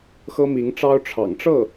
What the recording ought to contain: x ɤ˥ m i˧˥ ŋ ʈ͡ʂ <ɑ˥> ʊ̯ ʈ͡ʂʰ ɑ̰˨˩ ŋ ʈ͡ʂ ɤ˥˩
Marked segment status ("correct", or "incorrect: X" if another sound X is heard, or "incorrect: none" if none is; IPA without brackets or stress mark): correct